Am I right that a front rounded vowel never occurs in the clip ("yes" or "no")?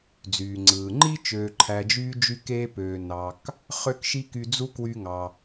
no